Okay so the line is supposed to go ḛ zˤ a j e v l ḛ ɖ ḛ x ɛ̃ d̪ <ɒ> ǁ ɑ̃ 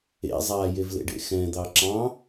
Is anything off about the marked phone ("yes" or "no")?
yes